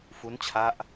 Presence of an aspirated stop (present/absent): present